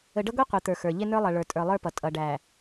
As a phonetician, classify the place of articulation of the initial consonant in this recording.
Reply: retroflex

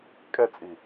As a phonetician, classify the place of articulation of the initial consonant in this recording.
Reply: velar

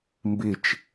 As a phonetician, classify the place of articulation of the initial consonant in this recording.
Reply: labial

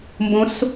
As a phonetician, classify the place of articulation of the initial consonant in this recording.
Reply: labial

